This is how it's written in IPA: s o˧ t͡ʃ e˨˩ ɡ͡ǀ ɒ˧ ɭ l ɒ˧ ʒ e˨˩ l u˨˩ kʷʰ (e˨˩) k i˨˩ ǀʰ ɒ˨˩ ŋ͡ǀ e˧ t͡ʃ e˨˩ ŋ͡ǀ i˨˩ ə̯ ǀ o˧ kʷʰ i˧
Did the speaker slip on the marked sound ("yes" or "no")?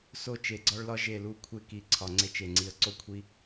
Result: yes